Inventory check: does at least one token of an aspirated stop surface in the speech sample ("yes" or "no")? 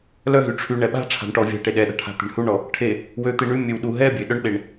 yes